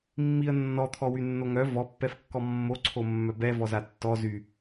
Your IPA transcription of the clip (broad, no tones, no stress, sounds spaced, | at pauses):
mː i ə̯ nː ɔ t̪ʰ ɔ w y nː o ŋ œ v ɔ pː ɛ f kː ɔ mː o ǀʰ o mː œ b ɛ v ɔ z a tː ɔ z y